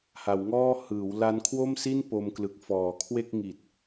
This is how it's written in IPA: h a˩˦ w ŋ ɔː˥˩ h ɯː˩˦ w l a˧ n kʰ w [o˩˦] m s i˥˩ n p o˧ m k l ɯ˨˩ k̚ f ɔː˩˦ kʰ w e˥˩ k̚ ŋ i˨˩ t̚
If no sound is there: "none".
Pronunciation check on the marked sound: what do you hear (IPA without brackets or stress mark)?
o˥˩